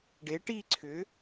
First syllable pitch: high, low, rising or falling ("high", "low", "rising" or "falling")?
rising